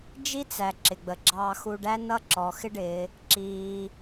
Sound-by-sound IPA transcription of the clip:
d͡ʒ i˥ t͡s æ˩ ǁ ɪ˩ ɡ͡b ə˩ ɡ͡ǁ ɑː˧ x u˧ ɖ æ˥ n ʌ˥ ǁ ɔ˩˧ x ɪ˥ ɖ ɪː˩˧ | ǁ iː˩

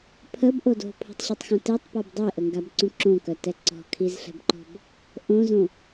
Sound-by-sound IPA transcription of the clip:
pʰ ə b ʔ o d o̤ pʰ o̤ tˤ ɕ o tˤ x õ t e tˤ p ɔ b dˤ e ʔ ə ŋ ɡ a b ǀ ũ ǁ õ k œ t ɛ ǀ ɔ̤ kʰ i z ɬ ɛ̤ b ǃ ɔ̤ b | ʔ õ z õ

